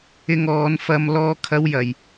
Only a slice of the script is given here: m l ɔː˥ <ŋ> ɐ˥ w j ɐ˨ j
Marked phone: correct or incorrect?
incorrect